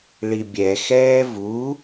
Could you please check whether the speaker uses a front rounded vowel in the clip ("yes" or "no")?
no